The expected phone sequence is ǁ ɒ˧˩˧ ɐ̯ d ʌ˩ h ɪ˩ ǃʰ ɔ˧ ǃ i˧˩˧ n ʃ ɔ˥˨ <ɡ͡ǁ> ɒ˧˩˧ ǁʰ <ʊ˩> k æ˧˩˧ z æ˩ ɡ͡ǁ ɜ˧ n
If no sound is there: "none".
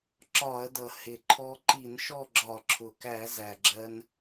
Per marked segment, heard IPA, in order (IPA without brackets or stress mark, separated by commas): ɡ͡ǁ, ʊ˩